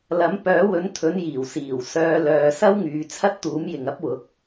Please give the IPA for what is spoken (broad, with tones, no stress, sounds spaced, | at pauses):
l ɐ˨˥ m p œː˨˥ w ɵ˨˥ n t̪ʰ ɵ˨˥ n j iː˨˩ w s iː˨˩ w s œː˧ l œː˨ s ɐ˥ w ŋ yː˨˧ t͡sʰ ɐ˥ t̚ t̪ uː˨˥ m j ɪ˨ ŋ ɐ˥ p̚ w ʊ˨˥ k̚